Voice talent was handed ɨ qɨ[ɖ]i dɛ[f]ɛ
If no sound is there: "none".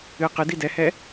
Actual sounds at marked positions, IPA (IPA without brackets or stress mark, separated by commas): d, h